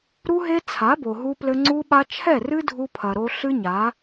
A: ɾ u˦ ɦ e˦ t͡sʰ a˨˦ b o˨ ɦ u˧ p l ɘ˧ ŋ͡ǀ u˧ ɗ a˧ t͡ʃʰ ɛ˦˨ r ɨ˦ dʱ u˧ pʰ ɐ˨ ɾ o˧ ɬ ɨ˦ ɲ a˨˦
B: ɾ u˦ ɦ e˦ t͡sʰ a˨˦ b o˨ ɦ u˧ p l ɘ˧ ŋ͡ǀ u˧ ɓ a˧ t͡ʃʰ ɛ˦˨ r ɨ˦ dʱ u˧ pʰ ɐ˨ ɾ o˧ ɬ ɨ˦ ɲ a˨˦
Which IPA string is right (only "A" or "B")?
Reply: B